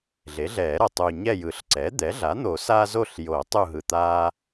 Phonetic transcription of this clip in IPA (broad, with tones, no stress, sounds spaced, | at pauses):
ɮ e˩˥ ɮ ɛː˨˩˦ ɾ ʌ˨˩ tˤ u˨˩ ɲ ɛ˦˨ j ɯ˨˩˦ ɬ ǀ ɛː˩˥ d̪ ɛ˩˥ ɮ a˩˥ n̪ o˨˩˦ s aː˦ z o˦˨ ɬ j o˨˩˦ tˤ u˦˨ ɦ ɯ˨˩ t̪ aː˦